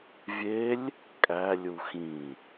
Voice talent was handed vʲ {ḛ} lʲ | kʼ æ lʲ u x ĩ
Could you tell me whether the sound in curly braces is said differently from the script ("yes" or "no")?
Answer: yes